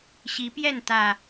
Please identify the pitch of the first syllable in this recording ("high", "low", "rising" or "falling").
rising